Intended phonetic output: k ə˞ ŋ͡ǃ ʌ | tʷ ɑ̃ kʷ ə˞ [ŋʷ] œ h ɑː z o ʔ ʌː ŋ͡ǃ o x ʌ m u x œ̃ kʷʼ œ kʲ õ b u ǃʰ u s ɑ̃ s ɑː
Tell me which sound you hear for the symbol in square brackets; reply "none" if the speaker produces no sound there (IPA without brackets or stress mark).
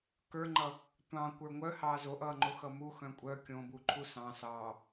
ŋʷ